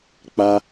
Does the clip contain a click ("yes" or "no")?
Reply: no